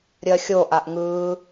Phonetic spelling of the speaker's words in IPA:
ɾʲ ɜ xʲ o ʔ a ʔ ŋ ɯː

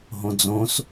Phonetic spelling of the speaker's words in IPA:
ɦ õ d͡z õ s

